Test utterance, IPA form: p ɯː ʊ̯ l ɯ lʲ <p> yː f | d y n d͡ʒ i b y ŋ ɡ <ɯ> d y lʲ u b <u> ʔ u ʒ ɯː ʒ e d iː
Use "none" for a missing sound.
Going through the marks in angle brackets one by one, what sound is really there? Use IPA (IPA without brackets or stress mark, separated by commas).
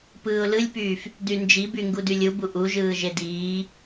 p, u, u